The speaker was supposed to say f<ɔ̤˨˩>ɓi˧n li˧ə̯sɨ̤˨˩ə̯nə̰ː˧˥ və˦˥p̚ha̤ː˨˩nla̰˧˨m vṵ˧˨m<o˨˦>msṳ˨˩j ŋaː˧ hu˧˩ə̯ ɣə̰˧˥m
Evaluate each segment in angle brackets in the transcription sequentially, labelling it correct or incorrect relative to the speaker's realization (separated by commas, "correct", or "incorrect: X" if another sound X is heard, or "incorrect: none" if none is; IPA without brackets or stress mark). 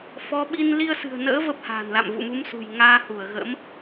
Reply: incorrect: ɔ˨˦, incorrect: u˨˦